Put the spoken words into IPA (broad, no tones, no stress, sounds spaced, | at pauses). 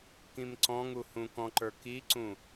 k ĩ m ǀ ɔ̃ ŋ u h ũ k ɔ̃ ǃ ə˞ k i ǀ ũ